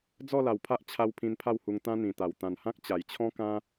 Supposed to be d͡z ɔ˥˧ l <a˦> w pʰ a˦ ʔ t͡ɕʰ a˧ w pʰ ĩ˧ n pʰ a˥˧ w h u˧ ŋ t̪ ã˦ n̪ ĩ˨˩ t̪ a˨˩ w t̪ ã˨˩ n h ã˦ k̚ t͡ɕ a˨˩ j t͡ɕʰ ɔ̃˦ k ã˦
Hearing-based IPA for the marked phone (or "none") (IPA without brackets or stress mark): a˨˩